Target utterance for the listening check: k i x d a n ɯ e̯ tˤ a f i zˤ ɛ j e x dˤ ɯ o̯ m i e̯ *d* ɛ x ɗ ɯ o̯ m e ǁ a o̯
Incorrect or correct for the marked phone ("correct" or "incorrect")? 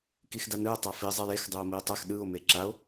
incorrect